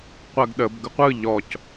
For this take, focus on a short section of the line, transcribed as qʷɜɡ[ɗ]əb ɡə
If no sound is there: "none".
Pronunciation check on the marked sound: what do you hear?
ɗ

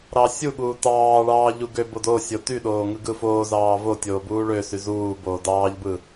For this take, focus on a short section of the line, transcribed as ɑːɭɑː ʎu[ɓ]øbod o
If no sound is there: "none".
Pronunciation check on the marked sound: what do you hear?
ɡ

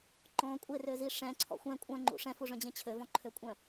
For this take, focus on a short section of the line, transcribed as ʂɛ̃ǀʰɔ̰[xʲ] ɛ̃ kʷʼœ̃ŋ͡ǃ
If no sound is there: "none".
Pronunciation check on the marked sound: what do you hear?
xʷ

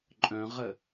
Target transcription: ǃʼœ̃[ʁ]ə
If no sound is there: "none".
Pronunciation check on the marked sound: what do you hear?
ʁ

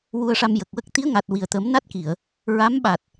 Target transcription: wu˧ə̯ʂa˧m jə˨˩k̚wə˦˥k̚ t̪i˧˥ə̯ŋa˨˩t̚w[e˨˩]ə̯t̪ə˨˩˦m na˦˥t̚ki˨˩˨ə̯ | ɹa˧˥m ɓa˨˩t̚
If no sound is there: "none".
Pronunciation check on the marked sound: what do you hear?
i˨˩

